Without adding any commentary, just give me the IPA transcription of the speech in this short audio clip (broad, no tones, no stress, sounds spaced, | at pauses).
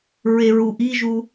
ɹ e ɹ u ʔ i ʒ u